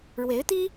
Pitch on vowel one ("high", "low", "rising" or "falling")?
rising